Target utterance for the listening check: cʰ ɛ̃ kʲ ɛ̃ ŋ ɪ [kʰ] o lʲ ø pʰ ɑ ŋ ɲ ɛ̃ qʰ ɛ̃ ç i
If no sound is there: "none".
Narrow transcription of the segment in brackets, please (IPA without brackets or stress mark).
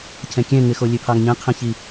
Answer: x